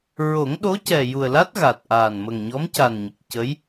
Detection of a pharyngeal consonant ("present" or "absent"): absent